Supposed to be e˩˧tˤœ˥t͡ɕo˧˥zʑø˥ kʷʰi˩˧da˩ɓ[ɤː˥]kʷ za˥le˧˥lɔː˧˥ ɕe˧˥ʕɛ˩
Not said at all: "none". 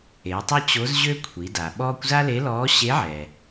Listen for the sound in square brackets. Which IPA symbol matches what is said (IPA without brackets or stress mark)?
ɔː˥